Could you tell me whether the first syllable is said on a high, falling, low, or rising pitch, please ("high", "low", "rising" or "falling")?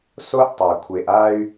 high